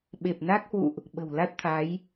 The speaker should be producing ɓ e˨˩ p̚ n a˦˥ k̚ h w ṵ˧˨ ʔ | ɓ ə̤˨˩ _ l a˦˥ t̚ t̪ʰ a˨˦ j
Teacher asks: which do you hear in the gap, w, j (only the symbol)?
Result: w